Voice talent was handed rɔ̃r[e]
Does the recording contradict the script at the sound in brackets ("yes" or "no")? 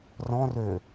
yes